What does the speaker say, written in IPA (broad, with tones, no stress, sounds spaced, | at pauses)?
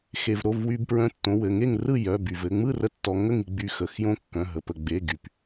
x e˩ v ɾ o˩˧˩ v w y˧ b p ɹ œ̃˧ tː õ˩˧˩ w ɘ˩˧˩ ŋ e˥˨ ŋ r ɯ˥˨ j œ˩˧˩ b y˩ v ɘ˥˨ ŋ͡m ɯ˥˨ r ə˧ tː ɔ˧ ŋ ə˥˨ ŋ i˧ ɡ͡b y˩˧˩ x ə˩˧˩ x j õ˥˨ kː œ̃˩˧˩ ɦ ə˩ p ə˩ ɡ͡b e˩˧˩ ɡ y˩ p